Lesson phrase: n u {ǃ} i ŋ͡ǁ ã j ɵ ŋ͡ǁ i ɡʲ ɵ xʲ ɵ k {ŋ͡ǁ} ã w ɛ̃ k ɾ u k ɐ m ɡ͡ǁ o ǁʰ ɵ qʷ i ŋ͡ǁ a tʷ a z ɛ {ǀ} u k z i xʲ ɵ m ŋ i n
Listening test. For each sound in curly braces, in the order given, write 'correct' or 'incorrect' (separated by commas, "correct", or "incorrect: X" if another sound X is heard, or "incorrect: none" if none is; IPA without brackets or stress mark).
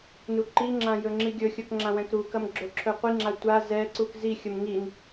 correct, correct, correct